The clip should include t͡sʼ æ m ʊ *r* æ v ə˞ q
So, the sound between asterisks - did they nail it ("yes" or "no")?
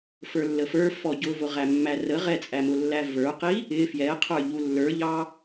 no